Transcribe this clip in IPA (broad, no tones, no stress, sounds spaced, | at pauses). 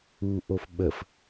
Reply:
u ʔ o f ɓ ə f